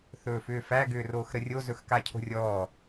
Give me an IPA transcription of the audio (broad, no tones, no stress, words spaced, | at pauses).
θɵːfʏːfæ ɡʏːroːxɾərʲo zɵxkacʰo̤rʲɔː